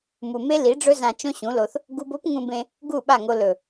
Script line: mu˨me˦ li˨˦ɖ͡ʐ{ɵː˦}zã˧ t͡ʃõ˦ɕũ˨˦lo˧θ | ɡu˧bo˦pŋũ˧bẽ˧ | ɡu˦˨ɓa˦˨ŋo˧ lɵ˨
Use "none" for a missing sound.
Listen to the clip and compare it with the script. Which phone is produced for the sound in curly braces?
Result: ɵ˦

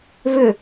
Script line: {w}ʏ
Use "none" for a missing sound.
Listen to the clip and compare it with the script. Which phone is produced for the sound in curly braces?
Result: β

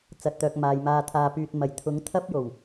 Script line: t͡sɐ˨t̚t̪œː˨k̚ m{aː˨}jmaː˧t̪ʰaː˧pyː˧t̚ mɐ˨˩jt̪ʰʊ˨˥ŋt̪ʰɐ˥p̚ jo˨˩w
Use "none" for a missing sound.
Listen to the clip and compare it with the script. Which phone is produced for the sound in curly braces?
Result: aː˨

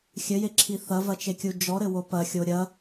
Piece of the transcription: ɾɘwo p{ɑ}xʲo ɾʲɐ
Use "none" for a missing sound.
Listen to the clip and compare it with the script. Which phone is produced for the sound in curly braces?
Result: ɐ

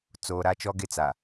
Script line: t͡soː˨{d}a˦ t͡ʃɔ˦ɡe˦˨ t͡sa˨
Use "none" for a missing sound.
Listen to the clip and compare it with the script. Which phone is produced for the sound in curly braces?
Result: ɾ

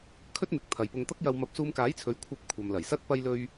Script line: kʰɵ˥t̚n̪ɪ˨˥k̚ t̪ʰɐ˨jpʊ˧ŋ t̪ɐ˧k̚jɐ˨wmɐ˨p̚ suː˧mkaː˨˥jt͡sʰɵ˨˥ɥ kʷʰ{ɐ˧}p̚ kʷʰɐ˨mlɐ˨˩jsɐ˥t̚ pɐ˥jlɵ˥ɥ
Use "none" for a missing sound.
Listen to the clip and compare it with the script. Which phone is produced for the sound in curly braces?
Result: ɐ˧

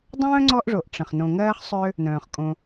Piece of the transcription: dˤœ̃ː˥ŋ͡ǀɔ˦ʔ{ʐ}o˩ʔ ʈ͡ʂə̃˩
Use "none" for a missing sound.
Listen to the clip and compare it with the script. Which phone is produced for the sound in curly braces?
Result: ʐ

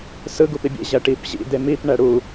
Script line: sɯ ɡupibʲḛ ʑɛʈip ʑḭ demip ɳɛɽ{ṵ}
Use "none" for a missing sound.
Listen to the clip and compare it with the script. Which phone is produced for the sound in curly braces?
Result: u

